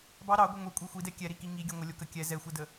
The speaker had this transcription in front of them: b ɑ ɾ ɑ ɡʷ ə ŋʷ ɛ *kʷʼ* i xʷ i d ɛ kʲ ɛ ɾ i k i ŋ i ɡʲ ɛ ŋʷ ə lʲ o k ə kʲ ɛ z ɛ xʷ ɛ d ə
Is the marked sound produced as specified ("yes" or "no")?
yes